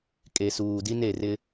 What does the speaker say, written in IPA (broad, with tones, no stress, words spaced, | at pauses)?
kʼe˨suː˨di˦n e˨ rɪ˦